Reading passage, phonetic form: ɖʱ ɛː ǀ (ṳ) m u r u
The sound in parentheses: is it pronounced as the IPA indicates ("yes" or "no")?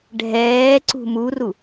yes